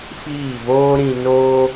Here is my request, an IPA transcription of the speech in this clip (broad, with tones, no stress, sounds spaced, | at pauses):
f iː˦˨ v oː˦ ɾ ĩ˧ n oː˦